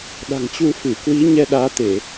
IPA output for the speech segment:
ɗ a̤˨˩ ŋ t͡ɕ u˧ f ɨ˧˩ k w i˨˦ ɲ ɛ˧ ɗ aː˨˦ t̪ e˧˩˨

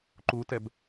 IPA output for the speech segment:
ǃ u t ɛ b

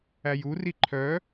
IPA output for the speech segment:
æ j u r i ǃʰ œ

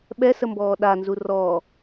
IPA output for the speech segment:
ɓ ɛ s ə m b ɔː ɗ a n z u r ɔ

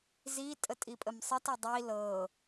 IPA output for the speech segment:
z i tʼ ə tʼ i pʼ ə m sˤ ɨ t ə dˤ i l ɤ

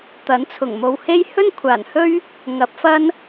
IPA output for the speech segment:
t̪ ɐ˨˥ n t͡sʰ ʊ˨˩ ŋ m o˨ w h e˥ j h ɵ˥ n kʷʰ aː˨˩ n h ɵ˥ ɥ | ŋ ɐ˨˥ p̚ f ɐ˥ n

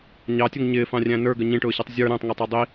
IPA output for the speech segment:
ɲ ɑ tʲ ʊ ŋ ɲ ɪː f ɑ̃ rʲ æ̃ n ə˞ ɡ ə ɲ ĩ ʈ ʊː ɕ ɔ tˤ zʲ ə˞ ɾ æ̃ tˤ ŋ ʊ tˤ æ dˤ i

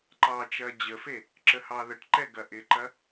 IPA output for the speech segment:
ǃ ɑ t͡ʃ ɐː d͡ʑ ə f e | ǁ ə h ɑ ð ə ʈ ǃ ɛ ɡ ɐ ʔ ɪ ǃ ɐ

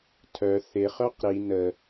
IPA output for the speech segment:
tʰ œ θ ɪ χ œ q ɾ i n ə

